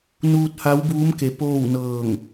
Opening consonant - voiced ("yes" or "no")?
yes